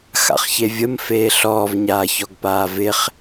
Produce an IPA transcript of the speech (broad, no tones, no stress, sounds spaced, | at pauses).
x a̰ χ ç e vʲ ə m f eː ɬ ɔː v ɲ aː ç ɔ ɡ p aː v ɪ χ